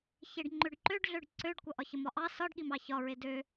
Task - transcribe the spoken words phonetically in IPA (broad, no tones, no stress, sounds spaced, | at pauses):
ç e ɖ ŋ͡ǃ ø ɖ ǃ ø ɖ ɮ ø ɖ ǀ ø ɖ kʷ ʌ ʔ ɒ ç ə m ɒ ʔ ɑ s ɒ ɖ ɠ i m ɑ ç ɒ ɹ e d ø